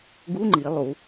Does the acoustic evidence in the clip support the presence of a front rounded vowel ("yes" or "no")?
no